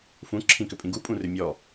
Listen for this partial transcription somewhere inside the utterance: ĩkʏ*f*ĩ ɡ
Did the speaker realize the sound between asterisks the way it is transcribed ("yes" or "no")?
no